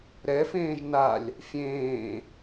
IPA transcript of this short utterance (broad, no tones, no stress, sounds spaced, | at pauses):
ɾ ɛ f ẽː ʒ n a lʲ | fʲ ẽː